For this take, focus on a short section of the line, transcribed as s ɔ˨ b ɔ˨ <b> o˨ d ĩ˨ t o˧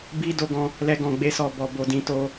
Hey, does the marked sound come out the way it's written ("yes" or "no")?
yes